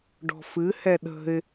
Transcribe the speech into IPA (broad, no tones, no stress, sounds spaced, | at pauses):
ɖ ɔ̤ f ɨ h ɛ ɗ ə̤ ɪ̯